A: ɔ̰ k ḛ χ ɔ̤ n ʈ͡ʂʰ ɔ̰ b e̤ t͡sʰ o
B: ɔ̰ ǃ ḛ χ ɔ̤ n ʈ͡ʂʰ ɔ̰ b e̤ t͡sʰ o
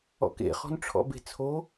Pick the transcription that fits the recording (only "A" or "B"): A